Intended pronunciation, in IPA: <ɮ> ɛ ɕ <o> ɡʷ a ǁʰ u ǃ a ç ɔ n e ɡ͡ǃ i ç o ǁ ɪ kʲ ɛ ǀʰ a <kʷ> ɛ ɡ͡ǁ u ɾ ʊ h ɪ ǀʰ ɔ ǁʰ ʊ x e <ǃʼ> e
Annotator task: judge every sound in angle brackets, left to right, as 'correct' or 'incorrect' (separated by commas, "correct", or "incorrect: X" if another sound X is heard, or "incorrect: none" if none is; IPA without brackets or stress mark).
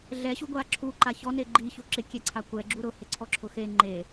correct, incorrect: u, correct, incorrect: ŋ͡ǃ